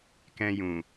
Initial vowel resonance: nasal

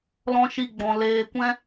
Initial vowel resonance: nasal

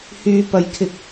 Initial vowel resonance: oral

